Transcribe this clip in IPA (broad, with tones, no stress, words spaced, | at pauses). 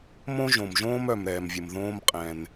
mõ˥ ʒõ˩mʒõː˥m œ˩m ɾɛː˩mvʲə˩m ðõː˥mqʼɛ̃˩n